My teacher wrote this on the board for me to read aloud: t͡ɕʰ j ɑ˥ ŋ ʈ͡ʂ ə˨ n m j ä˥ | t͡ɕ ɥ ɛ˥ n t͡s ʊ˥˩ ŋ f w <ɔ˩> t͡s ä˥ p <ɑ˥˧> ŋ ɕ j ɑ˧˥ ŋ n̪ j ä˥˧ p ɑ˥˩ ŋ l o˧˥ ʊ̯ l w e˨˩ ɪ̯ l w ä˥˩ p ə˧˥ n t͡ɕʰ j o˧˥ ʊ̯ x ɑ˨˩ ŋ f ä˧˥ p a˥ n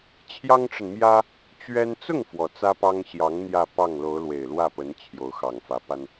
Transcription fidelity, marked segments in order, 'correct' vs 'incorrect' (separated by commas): correct, incorrect